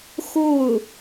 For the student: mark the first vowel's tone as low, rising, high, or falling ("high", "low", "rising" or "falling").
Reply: falling